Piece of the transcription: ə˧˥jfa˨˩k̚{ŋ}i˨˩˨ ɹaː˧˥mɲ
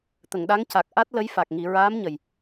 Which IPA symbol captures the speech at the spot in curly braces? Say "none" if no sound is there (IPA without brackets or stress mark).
ŋ